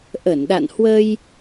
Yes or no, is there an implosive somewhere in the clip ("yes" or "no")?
yes